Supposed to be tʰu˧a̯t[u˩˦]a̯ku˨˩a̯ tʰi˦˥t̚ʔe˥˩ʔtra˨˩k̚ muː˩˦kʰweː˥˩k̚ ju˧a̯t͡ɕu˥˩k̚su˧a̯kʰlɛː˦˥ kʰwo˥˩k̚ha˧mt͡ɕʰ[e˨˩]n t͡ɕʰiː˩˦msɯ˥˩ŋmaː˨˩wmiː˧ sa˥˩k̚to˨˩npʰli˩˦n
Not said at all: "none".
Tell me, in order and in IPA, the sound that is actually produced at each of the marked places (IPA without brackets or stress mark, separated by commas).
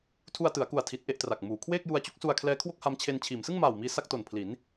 ɯ˩˦, e˧